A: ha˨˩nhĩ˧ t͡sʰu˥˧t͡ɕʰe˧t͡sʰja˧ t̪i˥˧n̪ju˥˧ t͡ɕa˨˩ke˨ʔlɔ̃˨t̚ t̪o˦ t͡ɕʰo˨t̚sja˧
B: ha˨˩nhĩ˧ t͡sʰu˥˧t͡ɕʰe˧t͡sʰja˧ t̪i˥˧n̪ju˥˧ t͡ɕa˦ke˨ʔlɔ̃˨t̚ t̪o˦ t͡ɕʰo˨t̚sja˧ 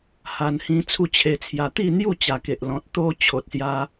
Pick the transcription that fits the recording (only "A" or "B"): A